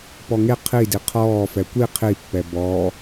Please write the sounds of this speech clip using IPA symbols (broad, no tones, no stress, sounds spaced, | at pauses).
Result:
p ɔ ŋ e qʰ i d i qʰ ɔː f ɛ kʷ i qʰ i pː ɛ b ɔ